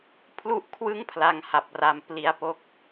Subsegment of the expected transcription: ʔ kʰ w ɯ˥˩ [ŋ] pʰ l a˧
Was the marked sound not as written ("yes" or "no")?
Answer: no